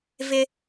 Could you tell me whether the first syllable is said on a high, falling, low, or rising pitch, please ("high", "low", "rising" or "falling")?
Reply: high